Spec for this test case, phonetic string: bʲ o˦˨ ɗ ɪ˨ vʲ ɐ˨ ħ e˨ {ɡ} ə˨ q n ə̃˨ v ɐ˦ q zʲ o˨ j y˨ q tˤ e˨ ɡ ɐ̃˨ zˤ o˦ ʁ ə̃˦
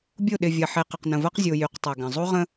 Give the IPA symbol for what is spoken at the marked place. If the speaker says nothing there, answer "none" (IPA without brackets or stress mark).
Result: q